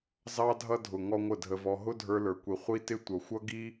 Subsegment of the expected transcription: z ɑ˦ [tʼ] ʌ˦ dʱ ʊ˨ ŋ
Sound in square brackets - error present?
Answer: yes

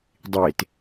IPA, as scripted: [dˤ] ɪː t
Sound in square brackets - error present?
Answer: no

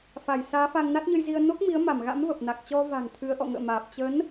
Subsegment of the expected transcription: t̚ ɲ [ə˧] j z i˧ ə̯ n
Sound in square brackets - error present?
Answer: no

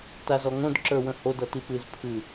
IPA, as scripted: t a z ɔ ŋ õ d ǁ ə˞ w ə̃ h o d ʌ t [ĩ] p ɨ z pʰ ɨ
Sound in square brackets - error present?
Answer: yes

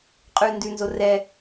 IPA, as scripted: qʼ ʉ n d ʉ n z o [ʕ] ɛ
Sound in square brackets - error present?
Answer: yes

